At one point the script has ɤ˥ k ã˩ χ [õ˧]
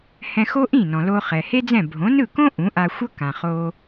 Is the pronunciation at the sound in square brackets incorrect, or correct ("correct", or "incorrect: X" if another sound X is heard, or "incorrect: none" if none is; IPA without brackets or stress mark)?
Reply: incorrect: o˧